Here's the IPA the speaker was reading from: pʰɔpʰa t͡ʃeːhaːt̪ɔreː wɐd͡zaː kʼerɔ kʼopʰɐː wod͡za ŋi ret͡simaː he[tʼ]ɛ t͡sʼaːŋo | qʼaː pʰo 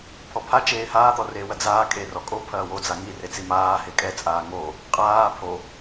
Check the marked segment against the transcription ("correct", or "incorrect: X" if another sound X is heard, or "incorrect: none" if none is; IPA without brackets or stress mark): incorrect: kʼ